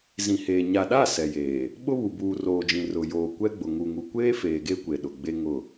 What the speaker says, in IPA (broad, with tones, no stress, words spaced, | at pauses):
zĩ˨heː˨ ɲa˨ɗa˦˨ sɛ˨jeː˨ | ɓʊ˦βu˨ buː˨roː˨d͡ʒĩ˨ rʊ˨joː˨ kʷɛ˦ɡ͡bʊ˨ ŋu˨ŋu˨kʷeː˦feː˨ ɡe˦kʷe˨ ɗʊ˨ ɡ͡be˦ŋʊ˦˨